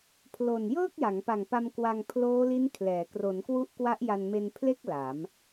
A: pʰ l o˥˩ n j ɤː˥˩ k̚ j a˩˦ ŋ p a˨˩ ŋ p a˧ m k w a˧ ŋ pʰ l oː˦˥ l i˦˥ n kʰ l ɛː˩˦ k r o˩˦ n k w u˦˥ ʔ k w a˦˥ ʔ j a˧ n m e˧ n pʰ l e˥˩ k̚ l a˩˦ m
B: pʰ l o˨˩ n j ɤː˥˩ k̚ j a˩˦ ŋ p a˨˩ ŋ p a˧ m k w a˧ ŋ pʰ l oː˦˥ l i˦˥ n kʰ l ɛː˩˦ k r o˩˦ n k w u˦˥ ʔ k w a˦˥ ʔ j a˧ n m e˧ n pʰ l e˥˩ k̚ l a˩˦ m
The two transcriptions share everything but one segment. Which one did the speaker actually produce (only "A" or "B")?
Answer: B